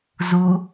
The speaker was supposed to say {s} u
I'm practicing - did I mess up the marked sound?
yes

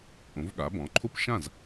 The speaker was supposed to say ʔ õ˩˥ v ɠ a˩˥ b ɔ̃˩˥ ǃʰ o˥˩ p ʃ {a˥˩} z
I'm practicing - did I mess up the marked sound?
yes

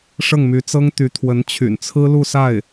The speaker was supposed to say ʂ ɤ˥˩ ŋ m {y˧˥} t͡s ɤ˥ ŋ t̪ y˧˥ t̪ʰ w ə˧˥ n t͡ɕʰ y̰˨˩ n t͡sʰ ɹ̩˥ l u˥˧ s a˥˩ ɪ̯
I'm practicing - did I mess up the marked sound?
no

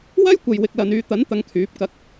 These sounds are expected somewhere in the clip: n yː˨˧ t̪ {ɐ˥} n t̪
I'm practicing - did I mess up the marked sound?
yes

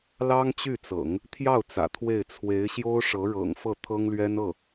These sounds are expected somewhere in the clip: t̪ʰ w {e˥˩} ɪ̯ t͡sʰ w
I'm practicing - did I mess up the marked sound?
no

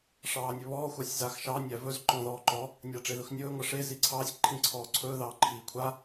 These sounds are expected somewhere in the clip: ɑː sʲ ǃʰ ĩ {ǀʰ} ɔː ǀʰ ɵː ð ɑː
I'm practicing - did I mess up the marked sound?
no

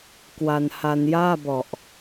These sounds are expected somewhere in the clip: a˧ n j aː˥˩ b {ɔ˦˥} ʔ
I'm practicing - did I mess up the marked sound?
yes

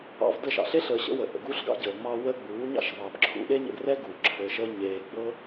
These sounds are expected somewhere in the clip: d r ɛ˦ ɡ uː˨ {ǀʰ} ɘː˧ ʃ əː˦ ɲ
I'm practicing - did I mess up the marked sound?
yes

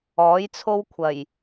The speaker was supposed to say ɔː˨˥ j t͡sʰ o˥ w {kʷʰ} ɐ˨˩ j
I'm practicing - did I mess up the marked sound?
no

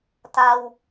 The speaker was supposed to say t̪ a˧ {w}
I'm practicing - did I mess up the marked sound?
no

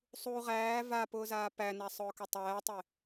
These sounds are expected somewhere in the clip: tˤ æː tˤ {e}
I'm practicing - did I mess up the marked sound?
no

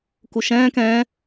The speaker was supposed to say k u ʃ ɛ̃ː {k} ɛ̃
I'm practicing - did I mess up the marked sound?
no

